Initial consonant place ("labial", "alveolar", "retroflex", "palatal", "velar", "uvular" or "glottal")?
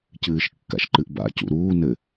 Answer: palatal